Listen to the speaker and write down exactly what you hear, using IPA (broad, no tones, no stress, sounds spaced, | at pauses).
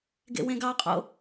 ɡ ḛ w ẽ ɡ ɑ qʼ o̰